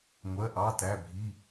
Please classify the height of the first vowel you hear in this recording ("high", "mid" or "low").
mid